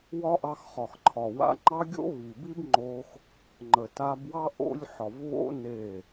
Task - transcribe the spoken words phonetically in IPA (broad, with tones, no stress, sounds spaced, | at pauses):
w ɒ˦ ʔ ɑ˧ x χ ɒ˨ x ǃʰ ɒ˨ w a̰˧ ŋ͡ǃ ɑ˦ ɡʲ o̰˦ β i˨ b i˦ b ŋ͡ǃ o˧ x | ŋ͡ǃ ə˨ t a˧ b w ɑ˦ ʔ o̰˧ lʲ ħ ɒ˨ v β o̰˦ n e˦˨